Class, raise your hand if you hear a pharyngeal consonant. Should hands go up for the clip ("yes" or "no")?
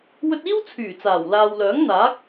no